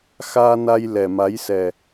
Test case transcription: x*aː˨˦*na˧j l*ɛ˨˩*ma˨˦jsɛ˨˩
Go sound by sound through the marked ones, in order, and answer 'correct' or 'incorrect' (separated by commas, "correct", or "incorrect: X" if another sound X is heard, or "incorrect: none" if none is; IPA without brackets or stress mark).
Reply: incorrect: aː˧, correct